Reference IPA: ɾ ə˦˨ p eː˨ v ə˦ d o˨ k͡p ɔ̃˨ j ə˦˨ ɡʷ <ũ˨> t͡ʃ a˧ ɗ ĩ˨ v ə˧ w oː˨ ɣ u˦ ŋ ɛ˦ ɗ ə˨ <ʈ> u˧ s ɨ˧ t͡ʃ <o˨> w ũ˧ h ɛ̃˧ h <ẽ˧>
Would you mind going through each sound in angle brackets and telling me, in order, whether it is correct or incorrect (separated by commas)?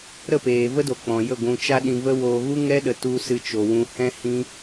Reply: correct, incorrect, correct, incorrect